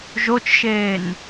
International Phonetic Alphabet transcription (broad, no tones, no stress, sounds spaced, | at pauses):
ʒ o t͡ʃ ʃ eː n